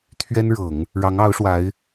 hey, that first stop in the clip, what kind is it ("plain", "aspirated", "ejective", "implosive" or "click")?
aspirated